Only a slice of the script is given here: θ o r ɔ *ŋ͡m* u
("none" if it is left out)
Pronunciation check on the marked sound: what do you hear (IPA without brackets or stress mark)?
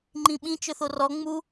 ŋ͡m